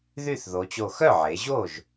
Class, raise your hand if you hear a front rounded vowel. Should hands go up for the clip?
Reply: yes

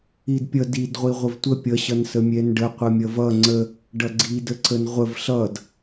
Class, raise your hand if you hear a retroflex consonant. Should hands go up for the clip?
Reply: yes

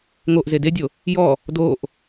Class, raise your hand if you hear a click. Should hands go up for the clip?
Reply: no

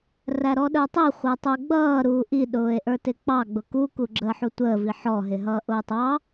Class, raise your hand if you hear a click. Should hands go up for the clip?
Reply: yes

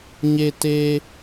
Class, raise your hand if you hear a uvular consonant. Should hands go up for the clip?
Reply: no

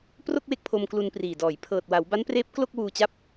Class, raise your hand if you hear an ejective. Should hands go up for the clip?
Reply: no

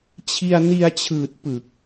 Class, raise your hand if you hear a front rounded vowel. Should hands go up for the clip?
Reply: no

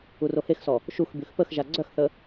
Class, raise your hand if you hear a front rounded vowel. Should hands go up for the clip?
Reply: yes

